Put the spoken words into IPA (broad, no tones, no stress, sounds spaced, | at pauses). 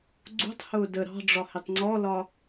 ɡ͡ǀ ṳ tˤ h ʊː d ə ɾ ɑ̤ ɖ͡ʐ ɒ h ɪ tˤ ŋ͡ǀ ɔ l ɒ